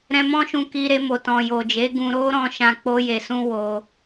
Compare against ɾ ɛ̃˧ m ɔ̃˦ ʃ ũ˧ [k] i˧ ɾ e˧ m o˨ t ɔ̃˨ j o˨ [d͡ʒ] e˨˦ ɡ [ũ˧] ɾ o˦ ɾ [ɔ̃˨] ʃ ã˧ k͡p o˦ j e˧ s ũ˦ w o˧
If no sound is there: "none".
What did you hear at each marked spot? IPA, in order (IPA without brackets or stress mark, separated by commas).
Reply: k, d͡ʒ, ũ˧, ɔ̃˧